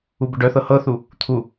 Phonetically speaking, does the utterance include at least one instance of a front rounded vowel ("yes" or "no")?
yes